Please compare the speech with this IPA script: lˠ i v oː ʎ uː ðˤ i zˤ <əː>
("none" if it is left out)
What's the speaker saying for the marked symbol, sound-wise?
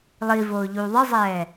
ɛː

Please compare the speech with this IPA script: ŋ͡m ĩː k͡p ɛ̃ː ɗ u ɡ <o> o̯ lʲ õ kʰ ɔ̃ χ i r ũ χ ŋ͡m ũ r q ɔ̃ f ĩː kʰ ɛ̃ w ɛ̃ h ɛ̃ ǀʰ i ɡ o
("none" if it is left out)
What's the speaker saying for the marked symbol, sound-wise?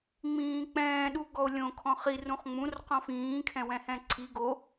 ɔ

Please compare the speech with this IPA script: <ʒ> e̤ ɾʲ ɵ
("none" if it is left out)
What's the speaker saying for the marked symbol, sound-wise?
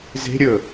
z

